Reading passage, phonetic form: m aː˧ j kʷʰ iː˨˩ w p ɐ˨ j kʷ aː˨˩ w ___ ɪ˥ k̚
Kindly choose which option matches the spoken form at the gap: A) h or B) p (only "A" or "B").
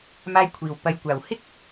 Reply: A